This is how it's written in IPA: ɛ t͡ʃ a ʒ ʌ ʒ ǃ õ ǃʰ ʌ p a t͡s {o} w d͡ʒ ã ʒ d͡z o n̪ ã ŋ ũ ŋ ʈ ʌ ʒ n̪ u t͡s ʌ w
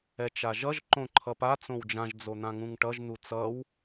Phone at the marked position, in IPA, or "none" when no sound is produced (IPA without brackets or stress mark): õ